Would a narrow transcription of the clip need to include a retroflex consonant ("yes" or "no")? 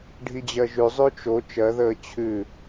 yes